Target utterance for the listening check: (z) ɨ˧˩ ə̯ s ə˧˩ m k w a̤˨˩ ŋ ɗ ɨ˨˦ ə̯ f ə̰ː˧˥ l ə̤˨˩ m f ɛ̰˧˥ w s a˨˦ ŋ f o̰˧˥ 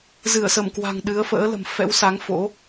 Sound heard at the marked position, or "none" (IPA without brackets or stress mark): z